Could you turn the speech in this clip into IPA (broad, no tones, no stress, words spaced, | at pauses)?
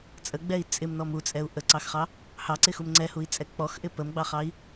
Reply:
t͡sʼəɡ͡bɛi̯ t͡sʼɪmnɔm ut͡sʼɛu̯ ʔəǀɑxχɑ | hɑǀɪxum ŋ͡ǀɛhui̯t͡sʼɛ k͡pɔxʔɪ pəmɡ͡bɑχɑi̯